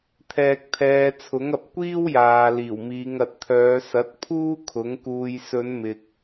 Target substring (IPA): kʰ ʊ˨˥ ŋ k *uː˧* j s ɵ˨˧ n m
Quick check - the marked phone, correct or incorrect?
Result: correct